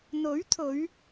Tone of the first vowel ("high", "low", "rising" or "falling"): rising